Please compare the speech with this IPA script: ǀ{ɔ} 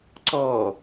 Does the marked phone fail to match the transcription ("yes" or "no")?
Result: no